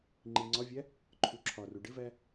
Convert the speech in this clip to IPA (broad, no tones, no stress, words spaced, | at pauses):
ŋ͡ǃiŋ͡ǀɒvʲæ | ǃʰuǁʰɒru ɖɪvæ